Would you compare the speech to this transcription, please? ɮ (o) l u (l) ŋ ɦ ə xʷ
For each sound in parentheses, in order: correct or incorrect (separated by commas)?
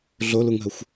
correct, incorrect